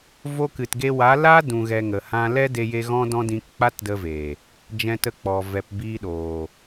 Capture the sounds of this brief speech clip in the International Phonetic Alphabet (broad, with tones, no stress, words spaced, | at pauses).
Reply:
vo˧kɨ˨tɡe˧ wa˨˦ laː˦ dũ˨ɣɛ˨ ŋə˨hã˧lɛ˦ de˧je˧ ɣɔ̃˦dɔ̃˦dĩ˧k k͡pa˦tdə˧veː˨ | d͡ʒɛ̃˧tə˧k͡pɔ˨ vɛ˨pbiː˧ɗoː˨